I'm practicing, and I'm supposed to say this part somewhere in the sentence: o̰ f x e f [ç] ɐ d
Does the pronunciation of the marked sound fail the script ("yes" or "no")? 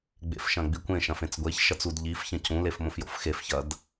no